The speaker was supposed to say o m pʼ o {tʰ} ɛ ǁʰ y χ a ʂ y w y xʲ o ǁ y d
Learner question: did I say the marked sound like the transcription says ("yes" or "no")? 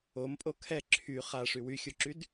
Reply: no